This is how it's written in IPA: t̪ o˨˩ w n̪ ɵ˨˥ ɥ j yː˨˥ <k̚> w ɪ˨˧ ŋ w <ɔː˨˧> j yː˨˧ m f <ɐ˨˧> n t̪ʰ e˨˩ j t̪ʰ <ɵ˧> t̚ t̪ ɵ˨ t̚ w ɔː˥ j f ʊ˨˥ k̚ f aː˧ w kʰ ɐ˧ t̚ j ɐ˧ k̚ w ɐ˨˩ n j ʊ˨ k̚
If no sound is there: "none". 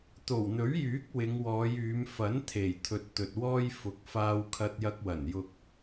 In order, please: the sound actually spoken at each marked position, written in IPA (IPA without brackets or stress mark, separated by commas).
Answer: k̚, ɔː˨˧, ɐ˨˥, ɵ˧